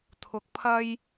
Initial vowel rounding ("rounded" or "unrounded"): rounded